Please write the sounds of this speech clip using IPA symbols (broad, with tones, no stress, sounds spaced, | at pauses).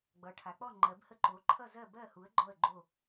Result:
ɡ͡b ʌ˩˧ ʈʰ a˩˧ k͡p ɔ˥˨ ŋ͡ǃ ɜ˩˧ b h ə˥˨ ǃ o˩˧ ǃʰ ʌ˥˨ z ɜ˥˨ b ɜ˥˨ h u˨˥ ə̯ ɡ͡ǃ ɔ˥˨ ə̯ ɡ͡ǃ o˥˨